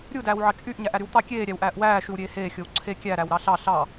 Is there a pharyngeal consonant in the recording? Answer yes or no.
yes